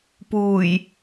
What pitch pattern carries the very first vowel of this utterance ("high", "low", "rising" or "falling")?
low